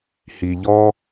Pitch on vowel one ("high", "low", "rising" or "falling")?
low